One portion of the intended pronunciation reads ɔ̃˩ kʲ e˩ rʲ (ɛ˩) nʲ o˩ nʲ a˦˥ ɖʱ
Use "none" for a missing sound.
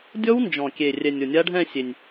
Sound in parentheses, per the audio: ɛ˩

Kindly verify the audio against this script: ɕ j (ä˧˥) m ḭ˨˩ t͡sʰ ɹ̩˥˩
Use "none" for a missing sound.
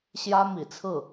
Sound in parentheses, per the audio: ä˥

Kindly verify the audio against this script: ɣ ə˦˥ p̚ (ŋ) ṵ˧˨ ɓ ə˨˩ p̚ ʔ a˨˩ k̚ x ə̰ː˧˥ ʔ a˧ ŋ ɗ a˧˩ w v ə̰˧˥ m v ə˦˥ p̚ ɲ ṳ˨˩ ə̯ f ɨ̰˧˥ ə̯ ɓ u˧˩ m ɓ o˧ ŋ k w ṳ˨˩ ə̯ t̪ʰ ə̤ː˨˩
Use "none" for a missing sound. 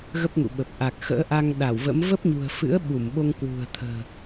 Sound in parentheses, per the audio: ŋ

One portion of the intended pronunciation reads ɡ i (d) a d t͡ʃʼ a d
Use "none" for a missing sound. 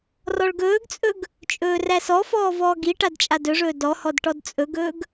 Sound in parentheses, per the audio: ʈ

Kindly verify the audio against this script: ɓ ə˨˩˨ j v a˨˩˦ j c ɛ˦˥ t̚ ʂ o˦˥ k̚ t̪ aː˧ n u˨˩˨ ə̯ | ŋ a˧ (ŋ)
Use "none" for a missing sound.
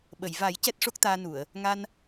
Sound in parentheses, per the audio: n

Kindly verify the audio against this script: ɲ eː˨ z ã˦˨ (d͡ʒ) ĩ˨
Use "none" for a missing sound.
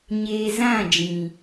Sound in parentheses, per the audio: d͡ʒ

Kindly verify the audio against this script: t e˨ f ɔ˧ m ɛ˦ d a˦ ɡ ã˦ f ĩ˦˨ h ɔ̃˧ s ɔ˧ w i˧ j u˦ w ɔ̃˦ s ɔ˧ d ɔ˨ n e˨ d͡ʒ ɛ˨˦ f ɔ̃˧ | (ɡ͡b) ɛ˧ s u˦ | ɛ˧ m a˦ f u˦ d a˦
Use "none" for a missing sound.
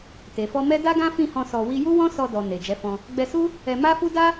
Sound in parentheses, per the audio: ɡ͡b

